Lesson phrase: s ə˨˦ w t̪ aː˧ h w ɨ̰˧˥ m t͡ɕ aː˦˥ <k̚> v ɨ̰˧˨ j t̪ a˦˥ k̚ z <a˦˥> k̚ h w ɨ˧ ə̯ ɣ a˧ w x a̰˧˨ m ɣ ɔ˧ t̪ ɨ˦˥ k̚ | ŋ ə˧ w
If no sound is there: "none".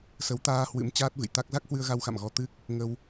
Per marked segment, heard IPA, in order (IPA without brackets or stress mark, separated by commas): t̚, a˦˥